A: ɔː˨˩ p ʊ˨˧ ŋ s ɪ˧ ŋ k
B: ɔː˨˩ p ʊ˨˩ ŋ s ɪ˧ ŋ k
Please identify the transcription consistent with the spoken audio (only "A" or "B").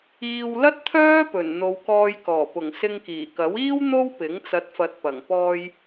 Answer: B